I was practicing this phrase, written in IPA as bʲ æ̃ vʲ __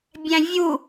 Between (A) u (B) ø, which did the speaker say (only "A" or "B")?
A